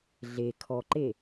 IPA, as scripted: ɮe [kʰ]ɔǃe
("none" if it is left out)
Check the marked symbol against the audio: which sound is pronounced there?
kʰ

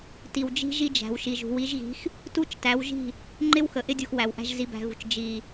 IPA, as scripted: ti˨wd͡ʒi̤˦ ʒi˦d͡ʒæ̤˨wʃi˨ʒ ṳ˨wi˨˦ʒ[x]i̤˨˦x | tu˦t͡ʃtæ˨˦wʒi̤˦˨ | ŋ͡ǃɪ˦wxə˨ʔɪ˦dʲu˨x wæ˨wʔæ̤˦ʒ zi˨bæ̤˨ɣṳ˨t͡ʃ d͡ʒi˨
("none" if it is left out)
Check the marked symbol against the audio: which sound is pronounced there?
ɣ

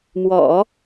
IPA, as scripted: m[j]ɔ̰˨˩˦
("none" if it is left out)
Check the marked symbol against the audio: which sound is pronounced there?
w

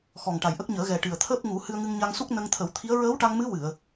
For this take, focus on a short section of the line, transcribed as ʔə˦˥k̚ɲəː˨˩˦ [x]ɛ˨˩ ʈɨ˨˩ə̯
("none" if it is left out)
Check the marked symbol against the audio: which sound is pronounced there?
ɣ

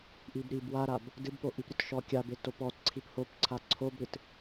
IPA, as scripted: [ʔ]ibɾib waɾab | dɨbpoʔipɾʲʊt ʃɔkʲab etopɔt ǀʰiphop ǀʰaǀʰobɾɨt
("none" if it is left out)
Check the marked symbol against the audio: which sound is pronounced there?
ʔ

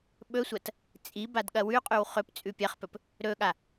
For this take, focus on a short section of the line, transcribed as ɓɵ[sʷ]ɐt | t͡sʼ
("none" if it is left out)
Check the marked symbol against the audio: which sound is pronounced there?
sʷ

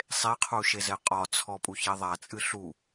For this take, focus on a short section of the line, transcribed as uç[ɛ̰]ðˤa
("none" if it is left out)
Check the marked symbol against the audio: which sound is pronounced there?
ɛ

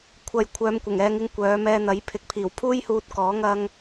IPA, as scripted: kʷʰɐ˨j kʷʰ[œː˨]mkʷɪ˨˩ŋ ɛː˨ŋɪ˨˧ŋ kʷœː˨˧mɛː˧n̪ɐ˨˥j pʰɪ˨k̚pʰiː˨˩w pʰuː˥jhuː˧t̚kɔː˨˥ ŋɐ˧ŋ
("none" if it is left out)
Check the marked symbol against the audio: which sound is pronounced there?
œː˨˧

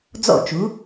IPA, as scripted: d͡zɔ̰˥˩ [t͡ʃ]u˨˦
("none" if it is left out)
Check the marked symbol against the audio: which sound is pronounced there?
t͡ʃ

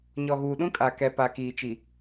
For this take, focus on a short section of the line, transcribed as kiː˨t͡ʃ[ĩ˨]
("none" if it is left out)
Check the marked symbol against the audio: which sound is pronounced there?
i˨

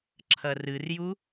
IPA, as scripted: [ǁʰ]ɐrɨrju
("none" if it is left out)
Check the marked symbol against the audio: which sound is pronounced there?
ǁʰ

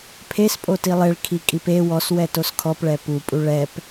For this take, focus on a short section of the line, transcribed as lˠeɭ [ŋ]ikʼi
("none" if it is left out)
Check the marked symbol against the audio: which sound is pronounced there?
kʰ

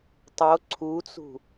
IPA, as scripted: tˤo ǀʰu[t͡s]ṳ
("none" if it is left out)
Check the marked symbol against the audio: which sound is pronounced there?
t͡s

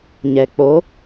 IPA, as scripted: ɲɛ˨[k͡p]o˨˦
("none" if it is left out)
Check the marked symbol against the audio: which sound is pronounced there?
k͡p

